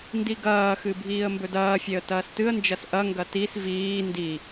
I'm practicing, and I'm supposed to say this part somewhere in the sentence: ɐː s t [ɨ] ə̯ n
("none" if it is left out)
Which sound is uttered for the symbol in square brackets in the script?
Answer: ɨ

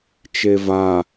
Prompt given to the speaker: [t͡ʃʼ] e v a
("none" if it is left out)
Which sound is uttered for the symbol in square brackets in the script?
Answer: t͡ʃ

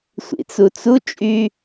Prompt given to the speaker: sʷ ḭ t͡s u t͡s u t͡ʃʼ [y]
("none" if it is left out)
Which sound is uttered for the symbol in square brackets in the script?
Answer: y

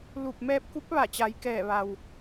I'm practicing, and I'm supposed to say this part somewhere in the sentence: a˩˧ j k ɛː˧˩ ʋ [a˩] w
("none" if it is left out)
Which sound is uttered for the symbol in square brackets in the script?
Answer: a˩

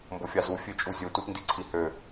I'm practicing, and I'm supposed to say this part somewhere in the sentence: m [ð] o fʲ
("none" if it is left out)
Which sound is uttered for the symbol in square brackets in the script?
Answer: b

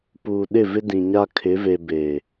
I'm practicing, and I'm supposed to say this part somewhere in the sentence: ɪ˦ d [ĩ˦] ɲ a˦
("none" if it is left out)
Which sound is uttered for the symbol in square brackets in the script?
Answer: ĩ˨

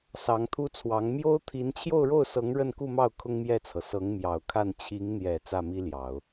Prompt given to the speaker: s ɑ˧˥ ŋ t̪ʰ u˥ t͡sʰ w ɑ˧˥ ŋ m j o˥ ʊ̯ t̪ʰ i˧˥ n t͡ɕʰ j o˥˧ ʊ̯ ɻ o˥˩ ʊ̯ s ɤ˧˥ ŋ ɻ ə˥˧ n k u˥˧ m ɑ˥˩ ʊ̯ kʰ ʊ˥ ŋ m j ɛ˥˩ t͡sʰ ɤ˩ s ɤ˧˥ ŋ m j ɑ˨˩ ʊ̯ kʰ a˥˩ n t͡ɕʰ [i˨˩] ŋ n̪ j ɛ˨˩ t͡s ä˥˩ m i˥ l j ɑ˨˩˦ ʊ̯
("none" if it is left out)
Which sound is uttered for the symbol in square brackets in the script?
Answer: i˧˥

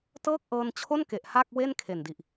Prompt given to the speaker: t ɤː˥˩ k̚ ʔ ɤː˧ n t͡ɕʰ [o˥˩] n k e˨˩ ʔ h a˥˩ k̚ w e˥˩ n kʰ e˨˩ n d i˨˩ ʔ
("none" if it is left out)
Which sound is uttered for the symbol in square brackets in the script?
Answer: o˥˩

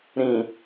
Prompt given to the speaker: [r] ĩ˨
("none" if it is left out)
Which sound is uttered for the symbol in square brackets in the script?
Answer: ɾ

